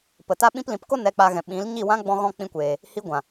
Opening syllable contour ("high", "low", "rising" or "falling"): low